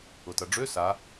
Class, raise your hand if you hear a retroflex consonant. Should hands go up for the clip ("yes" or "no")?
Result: yes